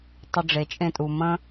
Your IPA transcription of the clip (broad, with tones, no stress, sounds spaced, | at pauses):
tˤ ə˧ ɖ͡ʐ e˩ t͡ʃʼ ẽ˧ tʼ u˩ m ə̃˥